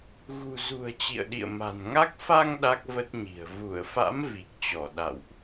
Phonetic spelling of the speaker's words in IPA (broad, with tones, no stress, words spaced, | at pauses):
ɣṳ˨˩zṳ˨˩ə̯ t͡ɕḭ˧˨ə̯ɗḭ˧˨ə̯ma̤˨˩nŋa˦˥k̚ fa˧ŋ ɗa˦˥k̚və˦˥t̚ɲi̤˨˩ə̯ vu˧˩ə̯fa̰˧˥m vi˨˩k̚t͡ɕɔ˧˩ ɗa̰˧˨wʔ